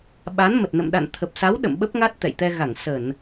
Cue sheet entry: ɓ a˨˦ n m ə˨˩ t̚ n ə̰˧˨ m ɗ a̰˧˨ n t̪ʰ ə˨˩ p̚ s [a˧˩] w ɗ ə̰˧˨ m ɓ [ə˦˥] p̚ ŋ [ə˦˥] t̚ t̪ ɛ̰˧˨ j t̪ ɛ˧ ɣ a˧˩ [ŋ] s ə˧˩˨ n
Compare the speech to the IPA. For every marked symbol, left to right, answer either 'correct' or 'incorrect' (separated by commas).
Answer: incorrect, correct, incorrect, correct